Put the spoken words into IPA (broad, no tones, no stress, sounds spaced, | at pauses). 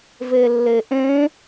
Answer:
v e lː e ʔ ẽ